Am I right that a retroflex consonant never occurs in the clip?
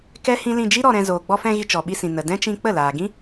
yes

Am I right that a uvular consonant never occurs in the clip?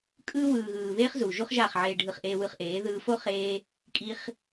no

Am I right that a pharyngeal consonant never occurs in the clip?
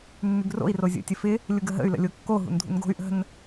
yes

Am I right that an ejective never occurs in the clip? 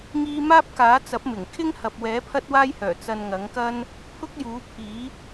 yes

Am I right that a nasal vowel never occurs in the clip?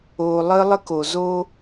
yes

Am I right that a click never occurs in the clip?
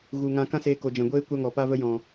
yes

